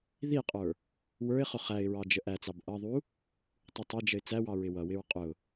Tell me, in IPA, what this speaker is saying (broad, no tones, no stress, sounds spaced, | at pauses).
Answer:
ð i qʼ ə˞ | w ə˞ ɪ̯ χ ʊ χ æ ɪ̯ ɹ ɑ d͡ʒ ə ʔ æ t͡s ɑ b ʔ ʌ ðˤ u | tˤ u tˤ ɛ d͡ʒ ə ɪ̯ t͡s æ w ɑ ɹ ɪ w ʌ w ɪ ɹ qʼ ʊ